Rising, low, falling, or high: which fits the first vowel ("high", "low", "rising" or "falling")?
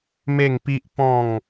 falling